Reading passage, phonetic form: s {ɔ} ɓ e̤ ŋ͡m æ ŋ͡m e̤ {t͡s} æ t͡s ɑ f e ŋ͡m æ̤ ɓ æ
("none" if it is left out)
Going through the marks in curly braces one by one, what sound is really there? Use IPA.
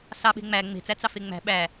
ɑ, t͡s

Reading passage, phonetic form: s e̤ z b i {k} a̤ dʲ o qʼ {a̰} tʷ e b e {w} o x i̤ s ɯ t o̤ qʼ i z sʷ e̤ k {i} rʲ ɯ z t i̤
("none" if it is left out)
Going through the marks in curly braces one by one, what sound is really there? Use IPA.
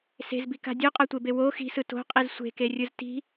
k, a, w, e

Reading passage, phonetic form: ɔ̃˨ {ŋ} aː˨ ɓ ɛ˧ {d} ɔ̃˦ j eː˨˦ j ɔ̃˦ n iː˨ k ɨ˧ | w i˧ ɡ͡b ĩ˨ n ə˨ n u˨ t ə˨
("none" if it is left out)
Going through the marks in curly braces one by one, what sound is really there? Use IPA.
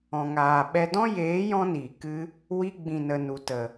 ŋ, d

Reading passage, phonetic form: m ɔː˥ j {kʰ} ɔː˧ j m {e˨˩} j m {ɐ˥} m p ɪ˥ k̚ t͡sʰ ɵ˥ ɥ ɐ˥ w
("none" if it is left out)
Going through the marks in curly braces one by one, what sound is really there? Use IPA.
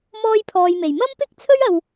pʰ, e˨˩, ɐ˥

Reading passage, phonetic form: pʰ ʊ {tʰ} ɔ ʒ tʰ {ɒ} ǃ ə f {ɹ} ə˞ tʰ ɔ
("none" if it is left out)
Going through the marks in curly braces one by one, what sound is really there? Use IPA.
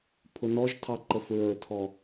n, ɑ, ɹ

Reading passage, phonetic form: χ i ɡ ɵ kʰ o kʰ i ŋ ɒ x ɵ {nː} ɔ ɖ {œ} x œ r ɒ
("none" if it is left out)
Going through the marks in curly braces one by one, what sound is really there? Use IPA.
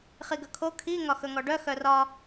ŋ, œ

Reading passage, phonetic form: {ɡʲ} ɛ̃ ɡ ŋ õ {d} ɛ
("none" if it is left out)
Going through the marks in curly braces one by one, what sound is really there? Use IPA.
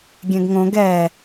ɡʲ, ɡ

